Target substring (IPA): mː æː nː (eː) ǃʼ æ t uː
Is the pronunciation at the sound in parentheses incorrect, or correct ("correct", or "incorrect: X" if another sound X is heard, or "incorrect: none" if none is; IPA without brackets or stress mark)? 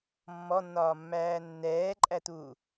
incorrect: ɛː